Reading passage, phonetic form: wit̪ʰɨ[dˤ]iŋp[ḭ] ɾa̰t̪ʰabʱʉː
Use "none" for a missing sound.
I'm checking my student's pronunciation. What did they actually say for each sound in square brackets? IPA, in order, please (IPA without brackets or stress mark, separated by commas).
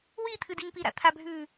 d, i